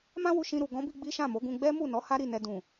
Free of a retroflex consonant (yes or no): yes